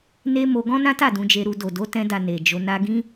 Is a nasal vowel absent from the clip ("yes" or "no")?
no